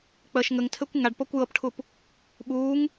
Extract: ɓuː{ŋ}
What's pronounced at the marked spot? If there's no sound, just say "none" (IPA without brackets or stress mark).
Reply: ŋ